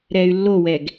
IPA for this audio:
ɾ ɛː y̯ lː o w ɛ ɡ

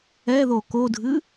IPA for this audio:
ɛ ð o k o dʱ ɨ

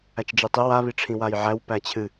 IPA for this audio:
æ t͡ʃ d͡ʒ e tˤ i w a β i ʈ͡ʂʰ ĩ w a j ʕ æ w p æ t͡ɕʰ ɨ

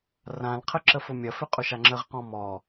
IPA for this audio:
r ã l qʰ ə ǁ ə f ʊ mʲ ɐ f ʏ qʼ ʊ ʃ a ŋ͡ǁ ə ʁ q ɔ̃ m ɔ

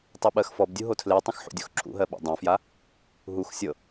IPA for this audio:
tˤ ɤ ɓ ɜ x f ɔ b dʲ u ɦ o tʰ l e tˤ ə̃ x ħ ṵ dʲ o x ǁʰ ṵ ɦ ɜ ɓ o̰ dˤ õ f j a | ɦ u x sʲ ɤ

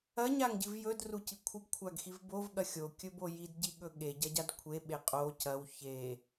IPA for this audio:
ɐ ɲ a ŋ ɟ ɨ v j ɵ d r u c i kʷʰ ɨ ɡ kʷʰ a ɡ x i v b o v ɠ ɐ xʲ o kʲ ɵ b o j i d ɟ i ɠ ɵ ɠ e ɟ ɐ ɟ a d kʷʰ e ɓ e qʼ o c ɐ w ç e

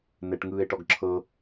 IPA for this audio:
n ɛ ʈ ŋ ɯː e̯ ʈ ɔ ɡ ǁʰ ɤ

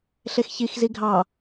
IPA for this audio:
ɬ e x ç i x z i ɡʱ ɑ

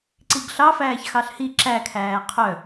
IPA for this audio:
ǀ i ɡ ɬ ɑ f æː ç x ɑ ɬ h i ǁ æ kʰ æː qʰ œ

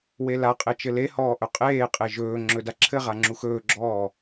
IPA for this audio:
w e l a qʼ e t͡ʃ ɘ l e h ɔː ʔ ɵ qʼ eː qʼ e ʒ ɵː ŋ͡ǁ ɵ d a ǁʰ ɘ ʁ a ŋ͡ǁ u x ɵː ɡ͡ǁ ɔː

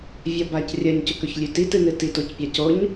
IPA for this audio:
vʲ ɐ b a c rʲ ɐ ɲ c ɵ k ɵ ç lʲ ʉ t i t ɨ n ɨ t i t o c pʲ a c o ɲ

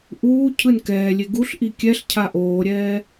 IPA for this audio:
ʔ uː cʰ ɯ n k ɛː lʲ e ɡ u ɬ ʔ i kʲ ɛ ɬ cʰ a ʔ oː ɾʲ ɛː

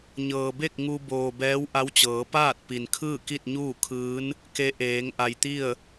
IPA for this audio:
ɲ ɤː˩ b e˥˨ k̚ ŋ u˧ b oː˩ b ɛː˧˥ w ʔ a˧˥ w t͡ɕ ɤː˩˧ p aː˥˨ t̚ p i˩ n kʰ ɯː˥˨ k i˥˨ t̚ ɲ uː˥˨ kʰ ɯː˧˥ n | k e˧˥ ʔ eː˩˧ ŋ ʔ a˩ j t̪ i˥˨ ə̯

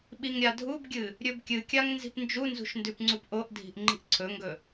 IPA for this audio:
ɓ i ŋ ɾʲ a dʱ u b ɡʲ ɨ | ɾʲ ɵ b kʲ ɨ kʲ a ŋ n z i̤ p n d͡ʒ u n z ṳ ʃ n d ʉ p ŋ͡ǀ u p ʔ o ʔ dʱ i̤ ʔ ŋ͡ǃ i̤ ʔ ǀʰ ɵ ŋ ɡ ɵ

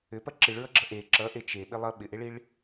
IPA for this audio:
ʏ p ɐ ǁ i ɭ ɹ ʌ ɡ͡ǁ ʌ ʔ e ǁ ʌ ʔ e t͡ʃ e ɓ ɪ lˠ ʌ ɓ ɪ ʔ e ɭ i ɭ

